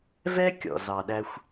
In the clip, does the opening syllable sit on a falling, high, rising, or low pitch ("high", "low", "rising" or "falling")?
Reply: high